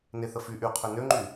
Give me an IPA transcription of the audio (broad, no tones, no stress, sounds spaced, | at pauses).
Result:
n e θ ə f y ʔ y qʰ ø n ø ŋ͡ǃ y